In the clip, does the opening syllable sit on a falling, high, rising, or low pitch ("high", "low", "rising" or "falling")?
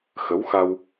rising